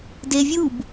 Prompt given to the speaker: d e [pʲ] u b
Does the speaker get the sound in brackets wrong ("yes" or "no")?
yes